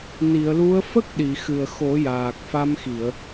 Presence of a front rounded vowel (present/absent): absent